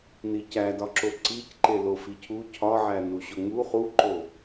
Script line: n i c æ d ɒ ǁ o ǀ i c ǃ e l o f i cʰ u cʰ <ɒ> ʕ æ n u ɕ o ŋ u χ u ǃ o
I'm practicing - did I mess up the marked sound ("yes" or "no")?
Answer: no